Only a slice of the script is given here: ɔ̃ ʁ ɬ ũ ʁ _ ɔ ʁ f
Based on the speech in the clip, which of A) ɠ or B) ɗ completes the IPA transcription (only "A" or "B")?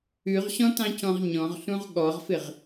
A